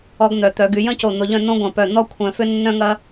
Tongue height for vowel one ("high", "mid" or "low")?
mid